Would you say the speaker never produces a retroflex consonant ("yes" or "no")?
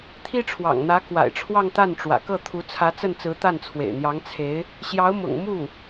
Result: no